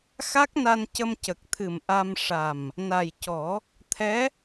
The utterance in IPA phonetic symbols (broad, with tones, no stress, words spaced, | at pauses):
xa˦˥k̚na˧n cə˧mcə˨˩k̚t̪ʰɨ˨˩m ʔa˧m ʂa˨˩m | na˨˩jcɔ˨˩˦ | t̪ʰɛ˧˥